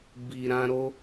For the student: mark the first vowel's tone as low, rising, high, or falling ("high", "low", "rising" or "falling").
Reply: low